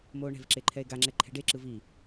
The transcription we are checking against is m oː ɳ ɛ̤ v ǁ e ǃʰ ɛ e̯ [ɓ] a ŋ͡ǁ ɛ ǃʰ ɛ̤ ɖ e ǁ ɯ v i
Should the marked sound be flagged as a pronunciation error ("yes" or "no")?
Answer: yes